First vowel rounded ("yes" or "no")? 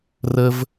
no